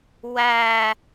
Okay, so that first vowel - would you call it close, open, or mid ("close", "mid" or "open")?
open